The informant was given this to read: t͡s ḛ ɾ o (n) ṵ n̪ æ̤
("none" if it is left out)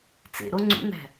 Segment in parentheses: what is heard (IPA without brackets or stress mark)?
ŋ͡ǀ